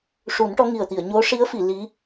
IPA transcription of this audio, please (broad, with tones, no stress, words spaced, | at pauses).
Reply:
ʂu˨˩˦nʈɔ˧˥ŋi˨˩ə̯ t̪i˨˩˨ə̯ɲo˧˥ ʂi˧˥ə̯fi˨˩˨ li˧˥